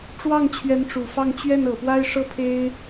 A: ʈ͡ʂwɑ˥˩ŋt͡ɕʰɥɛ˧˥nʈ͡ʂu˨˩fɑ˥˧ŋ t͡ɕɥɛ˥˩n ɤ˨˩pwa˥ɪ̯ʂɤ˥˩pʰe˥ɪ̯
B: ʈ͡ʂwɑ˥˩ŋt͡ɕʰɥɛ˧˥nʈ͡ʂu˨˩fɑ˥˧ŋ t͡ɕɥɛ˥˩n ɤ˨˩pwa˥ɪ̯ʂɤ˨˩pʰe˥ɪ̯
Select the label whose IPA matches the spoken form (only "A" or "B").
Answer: A